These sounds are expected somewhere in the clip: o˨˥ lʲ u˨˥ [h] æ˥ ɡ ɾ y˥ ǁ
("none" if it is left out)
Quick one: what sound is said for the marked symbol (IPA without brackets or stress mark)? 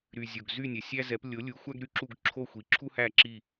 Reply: xʷ